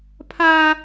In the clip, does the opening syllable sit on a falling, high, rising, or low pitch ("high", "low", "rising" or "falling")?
high